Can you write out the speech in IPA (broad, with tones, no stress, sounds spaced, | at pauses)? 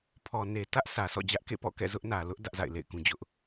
pʰ ɔ˨ n e˨ t ä˦ ʔ s ä˨ s ɔ̰˦˨ d͡ʑ ä˦ ʔ k ḛ˦˨ p ɔ̰˦˨ k ɛ̰˦˨ z ʊ˦ ʔ n ä˨ l ʊ˦ ʔ d ä˦ ʔ z a̰˦˨ ɪ̯ l ḛ˦˨ ɪ̯ k ũ˦ d͡ʑ ʊ˦ ʔ